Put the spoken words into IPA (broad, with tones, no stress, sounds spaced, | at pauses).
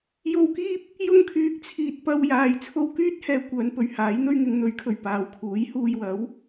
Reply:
j o˧ w k iː˥ p̚ | j ʊ˧ ŋ kʰ yː˨ k̚ t͡sʰ iː˨ t̚ p ɐ˧ w j aː˨ j t͡sʰ o˧ w k yː˥ t̚ h ɛː˨ kʷ œː˨˧ n p ɵ˨ ɥ h aː˨˥ j n̪ ɵ˥ ɥ ŋ ɪ˨˧ ŋ n̪ ɵ˨˥ ɥ kʰ ɵ˨˩ ɥ p aː˨ w kʰ uː˨˥ j h uː˧ j w ɐ˨˥ w